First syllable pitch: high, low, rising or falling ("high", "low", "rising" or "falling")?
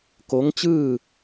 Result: rising